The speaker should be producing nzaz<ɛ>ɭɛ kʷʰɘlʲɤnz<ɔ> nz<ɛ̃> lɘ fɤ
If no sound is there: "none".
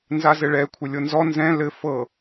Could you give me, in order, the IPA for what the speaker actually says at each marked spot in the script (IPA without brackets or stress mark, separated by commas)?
ɘ, ɔ, ɛ̃